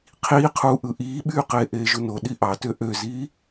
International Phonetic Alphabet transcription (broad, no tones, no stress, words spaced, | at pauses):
qʰiːqʰuː ʔɯʔiːɓyː qeːʔeːʒuno ɗiʔɑtø ʔøziː